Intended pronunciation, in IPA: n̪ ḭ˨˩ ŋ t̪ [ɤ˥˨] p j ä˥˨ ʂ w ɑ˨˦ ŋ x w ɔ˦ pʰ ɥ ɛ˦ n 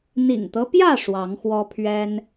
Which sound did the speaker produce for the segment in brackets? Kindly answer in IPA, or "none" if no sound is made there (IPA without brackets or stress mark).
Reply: ɤ˦